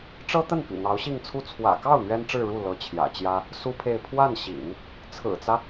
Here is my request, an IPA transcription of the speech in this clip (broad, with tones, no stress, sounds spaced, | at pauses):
ʈ͡ʂ ɤ˥ t̪ ə˥˩ n p ḭ˨˩ n̪ ɑ˧˥ ʊ̯ ɕ i˥˧ ŋ t͡sʰ u˥˩ t͡sʰ w ä̰˨˩ k ɑ˥˩ ʊ̯ n̪ ɥ ɛ˥ n ʈ͡ʂ ɻ̩˥˧ ɻ u˥˩ l ɤ˧˥ t͡ɕʰ j ä̰˨˩ t͡ɕ j ä˥ | s u˥ pʰ e˥˧ ɪ̯ pʰ w a˥˩ n ɕ ḭ˨˩˦ ŋ | t͡sʰ ɹ̩˨˩ t͡s ä˦